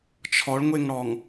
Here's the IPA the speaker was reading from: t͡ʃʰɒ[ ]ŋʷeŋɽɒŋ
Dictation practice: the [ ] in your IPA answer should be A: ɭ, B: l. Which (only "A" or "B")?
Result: A